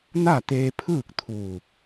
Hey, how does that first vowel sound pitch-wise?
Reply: falling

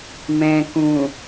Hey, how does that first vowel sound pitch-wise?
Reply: low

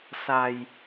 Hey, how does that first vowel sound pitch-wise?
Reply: low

